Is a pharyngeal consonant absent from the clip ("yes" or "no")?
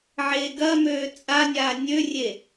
no